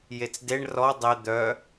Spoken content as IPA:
j e t͡s d e ɳ r ɔ dˤ e d̪ œ

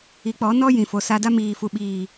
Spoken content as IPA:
i˨˦ k͡p ɔ˨˦ n ɔ˦ j ĩ˨ f o˨ s a˧ d a˦ m iː˨ f u˨ ɓ iː˨

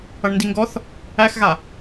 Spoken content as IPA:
ʌ ɳ n d i ŋ ɡ ɔ θ | æ x ɣ a

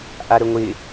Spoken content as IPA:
ʔ a ɾ ə ŋʷ ɪ

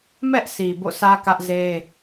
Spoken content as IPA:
m ɛ˦ ʔ sʰ i˨ b o̰˦˨ sʰ ä˦ k ä˦ ʔ z e˦

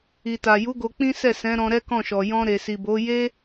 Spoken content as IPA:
i˨ t a˨ j u˨˦ ɡ o˧ k͡p ĩ˦ s ɛ˦˨ s ɛ̃˨˦ ɾ ɔ̃˧ ɾ ɛ˦ k ɔ̃˦˨ ʃ ɔ˨ j ɔ̃˧ ɾ e˨ s i˨ b o˨˦ j e˦

